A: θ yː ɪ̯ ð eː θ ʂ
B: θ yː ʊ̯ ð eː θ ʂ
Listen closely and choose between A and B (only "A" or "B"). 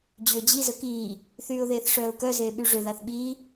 B